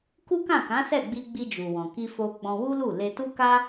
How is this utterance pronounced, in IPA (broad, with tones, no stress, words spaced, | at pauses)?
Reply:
ku˦kã˦˨kã˨˦ sɛ˦˨ɡ͡bi˧ɡ͡bi˧ d͡ʒu˨wɔ̃˨ ki˧fo˧ ɡ͡bɔ̃˧wu˦lu˦˨ le˧tu˦ka˦